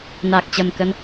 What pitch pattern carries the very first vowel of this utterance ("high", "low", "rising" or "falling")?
low